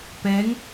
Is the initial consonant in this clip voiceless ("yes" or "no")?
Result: yes